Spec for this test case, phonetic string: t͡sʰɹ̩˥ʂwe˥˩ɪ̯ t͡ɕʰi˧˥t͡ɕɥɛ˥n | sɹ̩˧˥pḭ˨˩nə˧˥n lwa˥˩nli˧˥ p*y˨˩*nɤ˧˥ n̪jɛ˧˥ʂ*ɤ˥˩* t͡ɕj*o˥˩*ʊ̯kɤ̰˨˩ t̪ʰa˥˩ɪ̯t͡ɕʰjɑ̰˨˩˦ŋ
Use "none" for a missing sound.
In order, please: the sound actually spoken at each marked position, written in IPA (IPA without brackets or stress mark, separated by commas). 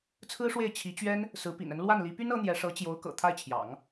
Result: y˥, ɤ˧˥, o˧˥